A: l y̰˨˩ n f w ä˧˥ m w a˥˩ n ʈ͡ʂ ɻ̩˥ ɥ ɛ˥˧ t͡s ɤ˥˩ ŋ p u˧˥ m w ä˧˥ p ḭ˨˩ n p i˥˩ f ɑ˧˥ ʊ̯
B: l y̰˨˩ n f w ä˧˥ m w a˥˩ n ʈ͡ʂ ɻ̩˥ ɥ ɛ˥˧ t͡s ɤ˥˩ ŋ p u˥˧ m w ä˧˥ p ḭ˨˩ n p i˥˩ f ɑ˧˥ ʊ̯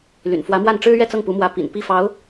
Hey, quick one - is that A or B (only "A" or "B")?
A